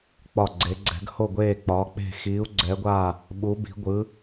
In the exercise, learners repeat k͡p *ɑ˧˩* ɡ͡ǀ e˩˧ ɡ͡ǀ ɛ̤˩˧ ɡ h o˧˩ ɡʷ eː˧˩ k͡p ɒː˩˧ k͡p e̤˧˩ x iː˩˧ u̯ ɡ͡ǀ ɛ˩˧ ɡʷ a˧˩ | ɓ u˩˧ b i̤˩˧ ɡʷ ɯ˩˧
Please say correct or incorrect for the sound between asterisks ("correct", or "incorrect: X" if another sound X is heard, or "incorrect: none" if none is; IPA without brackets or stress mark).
incorrect: ɒ˧˩